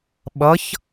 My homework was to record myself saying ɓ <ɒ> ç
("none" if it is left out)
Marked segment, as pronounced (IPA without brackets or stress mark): ʌ